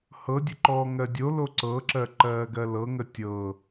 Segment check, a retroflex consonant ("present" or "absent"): absent